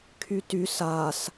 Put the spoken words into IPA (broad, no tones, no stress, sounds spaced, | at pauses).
kʰ y t y s a s